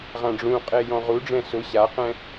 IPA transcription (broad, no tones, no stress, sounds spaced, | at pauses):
ʁ ã ɖ͡ʐ ũ qʼ e j ɔ̃ ʁ u ɖ͡ʐ ɛ̃ s ʊ ɕ a q ɛ̃